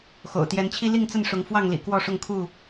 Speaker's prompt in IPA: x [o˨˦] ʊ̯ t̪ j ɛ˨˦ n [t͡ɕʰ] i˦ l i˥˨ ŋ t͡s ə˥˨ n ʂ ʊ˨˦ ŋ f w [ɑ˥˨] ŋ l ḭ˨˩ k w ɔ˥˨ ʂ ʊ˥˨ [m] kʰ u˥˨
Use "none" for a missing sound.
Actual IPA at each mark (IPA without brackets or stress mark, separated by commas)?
o̰˨˩, t͡ɕʰ, ɑ˥˨, ŋ